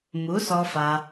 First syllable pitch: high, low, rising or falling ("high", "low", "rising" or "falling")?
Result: rising